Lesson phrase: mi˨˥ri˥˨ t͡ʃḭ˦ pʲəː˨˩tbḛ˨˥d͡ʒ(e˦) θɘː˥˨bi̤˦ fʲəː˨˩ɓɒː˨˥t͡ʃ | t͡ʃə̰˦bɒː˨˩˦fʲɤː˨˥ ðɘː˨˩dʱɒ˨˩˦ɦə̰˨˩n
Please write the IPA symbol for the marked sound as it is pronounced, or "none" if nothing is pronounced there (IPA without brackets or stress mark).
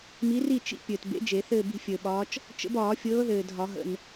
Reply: e˨˩˦